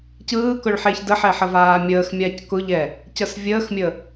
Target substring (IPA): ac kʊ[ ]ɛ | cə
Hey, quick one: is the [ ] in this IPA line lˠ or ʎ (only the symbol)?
ʎ